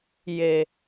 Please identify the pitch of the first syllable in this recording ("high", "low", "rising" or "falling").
low